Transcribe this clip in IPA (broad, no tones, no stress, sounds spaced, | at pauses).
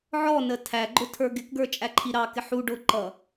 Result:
ʕ ɔ n ə tʰ æ ɡ͡ǃ ʊ tʰ ə˞ ɡ ɪ k ɡ ə˞ t͡ʃʼ æ ǃʰ i ɾ ɑ k ɪ ħ u ɖ ʊ ǃ ʌ